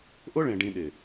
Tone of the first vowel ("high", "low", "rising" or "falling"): high